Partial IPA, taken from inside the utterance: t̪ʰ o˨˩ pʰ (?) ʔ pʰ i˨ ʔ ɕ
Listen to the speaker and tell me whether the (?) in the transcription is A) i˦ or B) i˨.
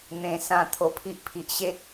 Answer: A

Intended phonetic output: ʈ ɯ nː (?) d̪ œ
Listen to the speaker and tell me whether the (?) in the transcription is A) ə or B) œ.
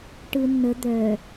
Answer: A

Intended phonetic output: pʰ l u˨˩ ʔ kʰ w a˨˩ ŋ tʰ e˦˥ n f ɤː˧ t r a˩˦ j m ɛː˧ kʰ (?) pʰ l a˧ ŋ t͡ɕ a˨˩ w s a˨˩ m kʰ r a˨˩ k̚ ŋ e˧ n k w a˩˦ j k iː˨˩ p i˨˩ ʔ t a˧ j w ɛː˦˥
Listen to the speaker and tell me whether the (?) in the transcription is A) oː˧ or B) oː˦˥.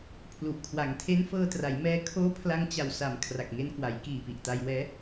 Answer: B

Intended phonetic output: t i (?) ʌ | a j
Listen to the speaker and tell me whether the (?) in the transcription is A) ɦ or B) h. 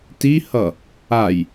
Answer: B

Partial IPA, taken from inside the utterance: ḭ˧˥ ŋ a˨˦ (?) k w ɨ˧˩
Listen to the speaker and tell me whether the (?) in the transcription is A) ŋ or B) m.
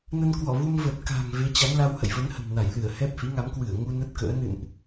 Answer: B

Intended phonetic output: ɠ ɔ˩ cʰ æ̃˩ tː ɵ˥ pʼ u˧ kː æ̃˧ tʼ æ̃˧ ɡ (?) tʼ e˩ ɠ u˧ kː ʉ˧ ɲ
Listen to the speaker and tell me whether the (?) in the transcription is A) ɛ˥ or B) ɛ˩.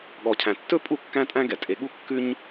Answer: B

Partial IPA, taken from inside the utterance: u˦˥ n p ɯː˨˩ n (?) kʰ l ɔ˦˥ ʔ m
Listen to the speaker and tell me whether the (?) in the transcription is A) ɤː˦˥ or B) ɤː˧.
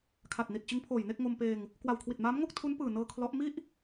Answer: B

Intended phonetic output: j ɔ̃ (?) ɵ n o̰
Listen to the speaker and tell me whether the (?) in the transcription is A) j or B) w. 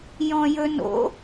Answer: A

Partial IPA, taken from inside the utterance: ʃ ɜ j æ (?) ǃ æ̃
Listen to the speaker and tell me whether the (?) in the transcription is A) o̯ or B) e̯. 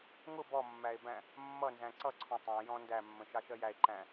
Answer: B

